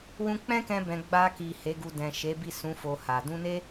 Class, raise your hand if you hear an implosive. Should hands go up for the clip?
no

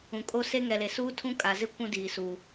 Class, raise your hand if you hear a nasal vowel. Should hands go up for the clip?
yes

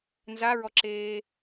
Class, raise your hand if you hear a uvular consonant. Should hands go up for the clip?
no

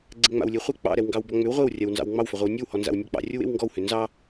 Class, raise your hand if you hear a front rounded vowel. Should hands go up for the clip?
yes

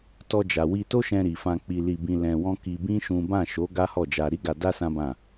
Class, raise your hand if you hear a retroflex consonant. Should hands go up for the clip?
no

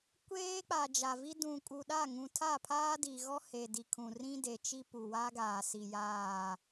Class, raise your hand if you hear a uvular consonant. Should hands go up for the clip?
no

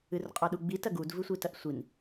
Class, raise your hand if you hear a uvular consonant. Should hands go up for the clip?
yes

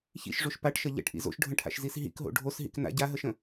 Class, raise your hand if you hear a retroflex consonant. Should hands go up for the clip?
yes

